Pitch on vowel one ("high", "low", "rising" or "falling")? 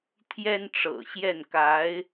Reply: high